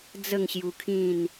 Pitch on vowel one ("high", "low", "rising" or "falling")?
falling